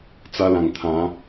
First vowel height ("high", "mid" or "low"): low